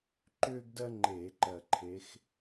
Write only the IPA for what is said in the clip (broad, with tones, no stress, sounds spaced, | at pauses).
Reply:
ǃ ʏː˥ ɡ d ɜ˥ ŋ͡ǃ eː˧˩˧ ǃ ɜ˨˩ ǃʰ e˨˦ x